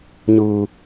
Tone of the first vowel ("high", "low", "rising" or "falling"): low